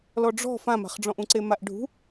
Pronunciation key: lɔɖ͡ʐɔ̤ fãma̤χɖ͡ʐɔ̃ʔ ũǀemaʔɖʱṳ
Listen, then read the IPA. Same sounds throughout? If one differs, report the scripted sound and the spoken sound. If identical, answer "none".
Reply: none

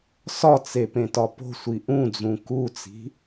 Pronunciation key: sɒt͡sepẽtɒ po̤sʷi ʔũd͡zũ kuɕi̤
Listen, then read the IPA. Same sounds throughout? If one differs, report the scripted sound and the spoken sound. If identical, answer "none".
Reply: ɕ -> t͡s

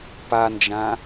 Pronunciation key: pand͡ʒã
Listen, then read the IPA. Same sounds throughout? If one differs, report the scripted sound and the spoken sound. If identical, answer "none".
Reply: none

